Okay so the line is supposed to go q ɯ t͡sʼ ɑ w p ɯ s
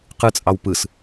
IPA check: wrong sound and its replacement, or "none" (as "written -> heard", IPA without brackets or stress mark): none